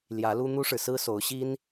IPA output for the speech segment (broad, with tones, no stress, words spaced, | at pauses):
ljä˨˦lu˦ n̪u˦ʂɻ̩˨ sɹ̩˦so˨˦ʊ̯ɕi˦n